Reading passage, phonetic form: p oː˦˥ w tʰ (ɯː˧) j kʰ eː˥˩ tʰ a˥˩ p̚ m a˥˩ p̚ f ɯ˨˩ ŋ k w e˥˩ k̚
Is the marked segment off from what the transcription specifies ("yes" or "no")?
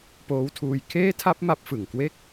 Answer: yes